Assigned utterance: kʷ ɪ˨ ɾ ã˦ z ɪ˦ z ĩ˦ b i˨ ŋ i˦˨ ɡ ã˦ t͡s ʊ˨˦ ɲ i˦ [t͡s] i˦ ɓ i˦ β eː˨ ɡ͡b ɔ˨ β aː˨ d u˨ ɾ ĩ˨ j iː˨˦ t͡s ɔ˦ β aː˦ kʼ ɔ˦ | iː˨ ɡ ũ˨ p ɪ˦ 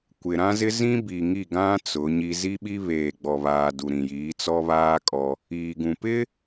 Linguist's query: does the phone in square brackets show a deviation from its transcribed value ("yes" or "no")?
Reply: yes